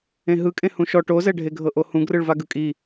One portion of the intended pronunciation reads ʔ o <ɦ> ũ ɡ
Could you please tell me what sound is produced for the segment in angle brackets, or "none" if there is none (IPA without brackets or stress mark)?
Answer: h